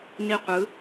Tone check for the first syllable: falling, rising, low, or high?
falling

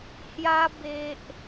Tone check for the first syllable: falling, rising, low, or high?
high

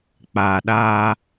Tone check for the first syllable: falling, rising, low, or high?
low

